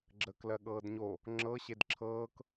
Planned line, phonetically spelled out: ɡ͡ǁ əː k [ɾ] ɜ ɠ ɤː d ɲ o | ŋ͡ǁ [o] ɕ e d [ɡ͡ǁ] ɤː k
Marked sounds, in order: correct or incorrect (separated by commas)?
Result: incorrect, incorrect, incorrect